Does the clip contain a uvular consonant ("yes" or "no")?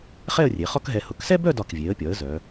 yes